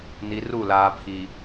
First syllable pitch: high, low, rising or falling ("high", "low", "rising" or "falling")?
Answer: low